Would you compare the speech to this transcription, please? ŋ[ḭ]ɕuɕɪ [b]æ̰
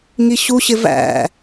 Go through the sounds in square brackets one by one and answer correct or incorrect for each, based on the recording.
incorrect, incorrect

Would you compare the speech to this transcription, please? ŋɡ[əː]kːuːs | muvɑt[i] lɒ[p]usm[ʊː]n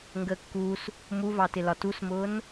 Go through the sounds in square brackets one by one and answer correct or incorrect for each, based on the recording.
correct, incorrect, incorrect, correct

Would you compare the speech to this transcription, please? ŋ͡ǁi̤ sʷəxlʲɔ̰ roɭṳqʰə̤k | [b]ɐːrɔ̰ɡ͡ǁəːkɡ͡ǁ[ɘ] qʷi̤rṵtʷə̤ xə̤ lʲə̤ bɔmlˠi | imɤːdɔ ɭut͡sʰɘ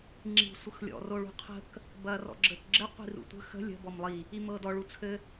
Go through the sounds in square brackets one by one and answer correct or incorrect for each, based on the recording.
correct, correct

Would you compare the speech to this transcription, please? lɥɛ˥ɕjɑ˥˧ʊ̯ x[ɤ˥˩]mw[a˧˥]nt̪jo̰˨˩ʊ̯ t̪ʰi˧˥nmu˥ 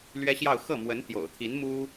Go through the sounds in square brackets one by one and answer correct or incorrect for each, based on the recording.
correct, incorrect

